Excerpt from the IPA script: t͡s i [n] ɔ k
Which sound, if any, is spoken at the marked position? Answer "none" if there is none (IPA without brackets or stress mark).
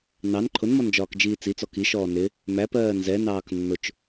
t͡s